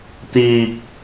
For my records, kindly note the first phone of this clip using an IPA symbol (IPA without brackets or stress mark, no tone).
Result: t̪